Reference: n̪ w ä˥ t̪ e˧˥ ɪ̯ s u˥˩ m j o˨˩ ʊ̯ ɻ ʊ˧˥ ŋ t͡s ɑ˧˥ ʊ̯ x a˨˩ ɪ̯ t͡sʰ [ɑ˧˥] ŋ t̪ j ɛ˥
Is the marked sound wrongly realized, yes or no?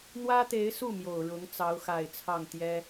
yes